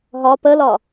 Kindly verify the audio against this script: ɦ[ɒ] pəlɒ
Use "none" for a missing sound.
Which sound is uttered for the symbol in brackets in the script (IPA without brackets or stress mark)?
ɒ